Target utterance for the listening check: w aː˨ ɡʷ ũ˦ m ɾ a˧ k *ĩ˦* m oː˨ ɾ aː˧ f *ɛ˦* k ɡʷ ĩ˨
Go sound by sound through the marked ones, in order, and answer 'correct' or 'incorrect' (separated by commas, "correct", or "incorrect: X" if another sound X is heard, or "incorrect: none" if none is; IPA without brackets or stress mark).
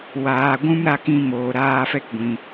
incorrect: ĩ˧, correct